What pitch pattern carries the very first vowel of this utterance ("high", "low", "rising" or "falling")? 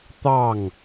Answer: falling